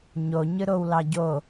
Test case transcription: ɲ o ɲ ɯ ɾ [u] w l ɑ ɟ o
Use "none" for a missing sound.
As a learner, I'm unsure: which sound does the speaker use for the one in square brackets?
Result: o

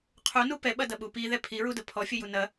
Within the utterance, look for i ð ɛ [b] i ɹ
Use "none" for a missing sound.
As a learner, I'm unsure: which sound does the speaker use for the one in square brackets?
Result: pʰ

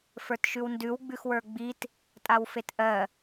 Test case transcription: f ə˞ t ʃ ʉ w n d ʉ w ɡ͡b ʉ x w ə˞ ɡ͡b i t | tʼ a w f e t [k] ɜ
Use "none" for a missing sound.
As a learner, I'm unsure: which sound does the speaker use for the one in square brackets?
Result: ʔ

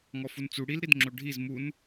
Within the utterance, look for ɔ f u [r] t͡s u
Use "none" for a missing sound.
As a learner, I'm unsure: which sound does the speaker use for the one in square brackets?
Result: n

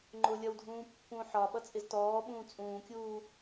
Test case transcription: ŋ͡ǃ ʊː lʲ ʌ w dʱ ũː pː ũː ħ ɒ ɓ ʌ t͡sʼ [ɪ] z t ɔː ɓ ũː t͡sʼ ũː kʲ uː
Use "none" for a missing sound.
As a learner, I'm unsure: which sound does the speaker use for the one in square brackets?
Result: ɪ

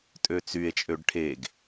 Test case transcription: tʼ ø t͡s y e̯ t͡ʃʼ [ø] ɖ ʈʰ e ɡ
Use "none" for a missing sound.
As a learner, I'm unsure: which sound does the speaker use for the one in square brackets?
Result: ø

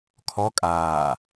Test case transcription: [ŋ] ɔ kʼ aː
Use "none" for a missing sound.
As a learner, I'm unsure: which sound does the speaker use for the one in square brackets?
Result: kʰ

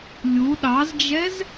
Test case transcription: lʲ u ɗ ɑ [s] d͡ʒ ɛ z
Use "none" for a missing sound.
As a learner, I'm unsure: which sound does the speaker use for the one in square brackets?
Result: z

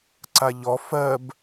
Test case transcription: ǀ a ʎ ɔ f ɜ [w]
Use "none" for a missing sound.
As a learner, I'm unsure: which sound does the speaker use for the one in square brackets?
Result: b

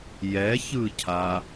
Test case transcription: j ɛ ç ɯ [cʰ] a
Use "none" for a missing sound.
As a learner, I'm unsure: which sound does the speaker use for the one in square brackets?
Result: cʰ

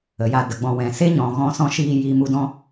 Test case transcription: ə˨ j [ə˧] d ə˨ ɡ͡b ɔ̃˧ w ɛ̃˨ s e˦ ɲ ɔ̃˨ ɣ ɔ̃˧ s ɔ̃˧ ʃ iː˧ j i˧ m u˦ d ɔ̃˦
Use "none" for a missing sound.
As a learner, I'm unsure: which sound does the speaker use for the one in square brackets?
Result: a˧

